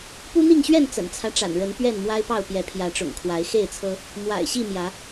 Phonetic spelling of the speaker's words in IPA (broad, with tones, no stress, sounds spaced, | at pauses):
p u˦ n̪ i˥˨ ŋ ɕ ɥ ɛ˥˨ n t͡s ə̰˨˩ n t͡sʰ ä˦ ʈ͡ʂ a̰˨˩ n ɻ ə˨˦ n p ɥ ɛ˥˨ n m w a˦ ɪ̯ p ɑ˥˨ ʊ̯ p j ɛ˨˦ pʰ j ä˨˦ ʈ͡ʂ ʊ̰˨˩ ŋ kʰ w a˨˦ ɪ̯ x e˥˨ ɪ̯ t͡sʰ ɤ˦ | m w a̰˨˩ ɪ̯ ɕ i˥˨ m j ä˨˦